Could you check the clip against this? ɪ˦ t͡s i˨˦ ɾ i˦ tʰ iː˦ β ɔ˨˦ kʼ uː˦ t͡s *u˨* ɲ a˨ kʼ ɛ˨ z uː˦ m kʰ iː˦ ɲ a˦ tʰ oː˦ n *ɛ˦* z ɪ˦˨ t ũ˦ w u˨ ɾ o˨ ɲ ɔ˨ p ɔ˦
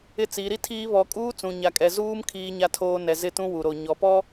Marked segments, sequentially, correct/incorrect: incorrect: ũ˨, incorrect: ɛ˨

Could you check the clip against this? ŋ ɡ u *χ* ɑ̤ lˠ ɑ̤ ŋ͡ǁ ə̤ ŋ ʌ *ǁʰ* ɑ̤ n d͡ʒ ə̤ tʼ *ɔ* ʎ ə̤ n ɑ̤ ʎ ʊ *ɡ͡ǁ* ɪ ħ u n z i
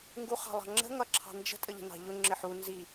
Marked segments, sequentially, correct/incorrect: correct, correct, incorrect: ə, incorrect: ŋ͡ǁ

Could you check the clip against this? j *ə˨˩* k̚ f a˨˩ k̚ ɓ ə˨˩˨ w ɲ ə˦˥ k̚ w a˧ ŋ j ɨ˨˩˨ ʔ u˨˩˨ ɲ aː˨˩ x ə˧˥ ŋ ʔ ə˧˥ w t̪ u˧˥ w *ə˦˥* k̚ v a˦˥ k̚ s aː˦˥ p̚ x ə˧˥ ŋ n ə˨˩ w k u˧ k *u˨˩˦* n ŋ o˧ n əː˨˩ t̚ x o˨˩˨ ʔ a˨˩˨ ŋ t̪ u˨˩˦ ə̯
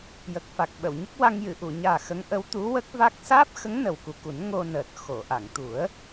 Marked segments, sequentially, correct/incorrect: correct, correct, correct

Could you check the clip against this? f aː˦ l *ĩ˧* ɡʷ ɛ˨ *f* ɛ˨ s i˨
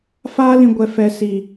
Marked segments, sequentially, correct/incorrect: correct, correct

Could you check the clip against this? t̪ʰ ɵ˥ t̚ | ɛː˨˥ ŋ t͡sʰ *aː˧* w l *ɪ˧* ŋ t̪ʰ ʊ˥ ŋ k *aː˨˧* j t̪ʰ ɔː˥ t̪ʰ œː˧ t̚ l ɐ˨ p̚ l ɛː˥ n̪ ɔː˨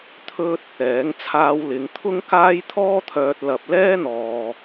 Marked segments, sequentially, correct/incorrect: correct, incorrect: ɪ˨˧, incorrect: aː˥

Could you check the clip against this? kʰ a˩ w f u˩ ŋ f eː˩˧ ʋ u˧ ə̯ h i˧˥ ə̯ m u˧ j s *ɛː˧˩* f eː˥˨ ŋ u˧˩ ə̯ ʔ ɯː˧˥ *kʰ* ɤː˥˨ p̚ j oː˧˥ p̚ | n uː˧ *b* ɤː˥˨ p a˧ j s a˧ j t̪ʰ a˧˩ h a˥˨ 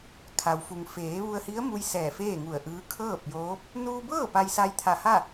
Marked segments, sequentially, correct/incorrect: correct, correct, correct

